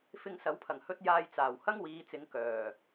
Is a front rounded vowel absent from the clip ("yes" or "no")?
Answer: no